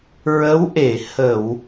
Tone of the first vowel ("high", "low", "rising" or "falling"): rising